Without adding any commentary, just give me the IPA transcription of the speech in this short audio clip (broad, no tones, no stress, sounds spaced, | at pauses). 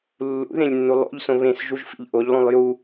lː ṵ ð ẽ lʲ nː u lˠ o̰ ʎ s õ β ẽ s ʒ u ʒ f ḭ ʎ ʔ o ʎ lˠ ũ lˠ j u